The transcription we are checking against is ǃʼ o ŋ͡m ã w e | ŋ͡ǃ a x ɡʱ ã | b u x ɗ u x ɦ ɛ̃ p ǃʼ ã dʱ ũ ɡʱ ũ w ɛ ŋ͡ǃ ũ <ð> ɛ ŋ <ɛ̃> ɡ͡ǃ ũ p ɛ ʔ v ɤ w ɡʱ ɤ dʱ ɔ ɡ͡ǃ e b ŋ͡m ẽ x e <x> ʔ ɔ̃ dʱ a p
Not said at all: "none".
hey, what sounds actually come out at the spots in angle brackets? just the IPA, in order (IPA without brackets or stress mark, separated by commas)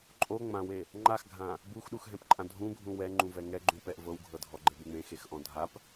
v, ɛ, x